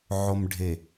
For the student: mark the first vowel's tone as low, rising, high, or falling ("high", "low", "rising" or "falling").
low